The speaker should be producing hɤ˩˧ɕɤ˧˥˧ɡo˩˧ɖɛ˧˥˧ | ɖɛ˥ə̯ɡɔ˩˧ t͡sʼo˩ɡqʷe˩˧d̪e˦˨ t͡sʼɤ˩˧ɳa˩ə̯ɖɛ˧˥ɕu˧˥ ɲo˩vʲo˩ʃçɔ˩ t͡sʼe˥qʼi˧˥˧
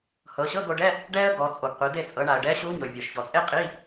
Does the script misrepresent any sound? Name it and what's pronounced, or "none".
none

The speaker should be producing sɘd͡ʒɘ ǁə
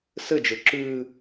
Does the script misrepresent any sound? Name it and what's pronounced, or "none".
ə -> ʉ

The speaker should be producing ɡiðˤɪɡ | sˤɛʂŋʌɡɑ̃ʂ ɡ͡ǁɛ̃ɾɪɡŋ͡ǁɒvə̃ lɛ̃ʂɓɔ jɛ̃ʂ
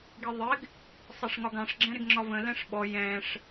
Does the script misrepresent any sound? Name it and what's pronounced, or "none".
ʌ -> ɒ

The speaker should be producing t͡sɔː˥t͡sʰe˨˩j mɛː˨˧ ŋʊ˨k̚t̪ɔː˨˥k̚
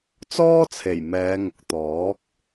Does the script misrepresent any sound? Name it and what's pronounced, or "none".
none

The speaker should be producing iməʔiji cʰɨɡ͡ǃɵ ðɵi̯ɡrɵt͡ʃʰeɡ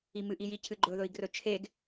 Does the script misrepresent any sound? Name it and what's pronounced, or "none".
ə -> ɨ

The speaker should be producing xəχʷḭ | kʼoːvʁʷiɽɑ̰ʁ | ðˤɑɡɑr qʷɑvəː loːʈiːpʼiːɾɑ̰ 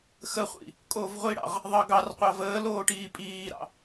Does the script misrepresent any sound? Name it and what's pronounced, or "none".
none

